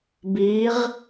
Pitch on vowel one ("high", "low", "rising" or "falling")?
rising